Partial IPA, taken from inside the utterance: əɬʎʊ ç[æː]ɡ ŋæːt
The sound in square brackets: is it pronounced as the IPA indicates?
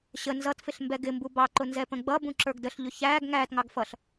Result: yes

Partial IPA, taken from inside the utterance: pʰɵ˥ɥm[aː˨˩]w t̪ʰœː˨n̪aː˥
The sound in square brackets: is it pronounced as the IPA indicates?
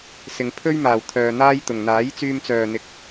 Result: yes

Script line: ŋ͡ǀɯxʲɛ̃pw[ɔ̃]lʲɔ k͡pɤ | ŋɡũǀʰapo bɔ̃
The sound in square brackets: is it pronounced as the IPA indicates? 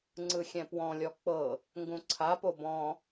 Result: yes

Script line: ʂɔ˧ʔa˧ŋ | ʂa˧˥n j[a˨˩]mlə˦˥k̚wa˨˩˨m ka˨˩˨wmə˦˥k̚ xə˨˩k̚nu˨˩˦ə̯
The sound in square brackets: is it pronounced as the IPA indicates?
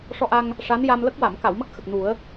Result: no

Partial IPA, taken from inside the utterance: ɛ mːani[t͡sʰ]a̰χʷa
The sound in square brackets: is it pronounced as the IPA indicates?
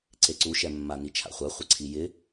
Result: no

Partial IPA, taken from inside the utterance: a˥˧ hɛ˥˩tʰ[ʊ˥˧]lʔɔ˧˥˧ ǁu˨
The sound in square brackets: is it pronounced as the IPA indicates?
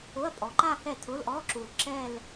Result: no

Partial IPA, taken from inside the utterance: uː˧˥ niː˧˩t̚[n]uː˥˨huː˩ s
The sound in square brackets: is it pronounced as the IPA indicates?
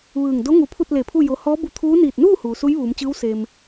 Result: yes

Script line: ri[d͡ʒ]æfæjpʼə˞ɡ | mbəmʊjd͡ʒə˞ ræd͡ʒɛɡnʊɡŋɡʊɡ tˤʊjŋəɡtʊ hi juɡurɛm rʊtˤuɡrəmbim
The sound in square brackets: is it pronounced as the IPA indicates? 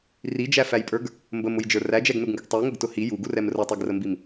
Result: yes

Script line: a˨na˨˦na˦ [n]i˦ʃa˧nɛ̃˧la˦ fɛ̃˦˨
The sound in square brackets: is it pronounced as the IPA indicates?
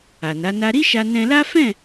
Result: no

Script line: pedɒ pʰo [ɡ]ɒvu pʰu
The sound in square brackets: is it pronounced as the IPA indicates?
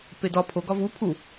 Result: yes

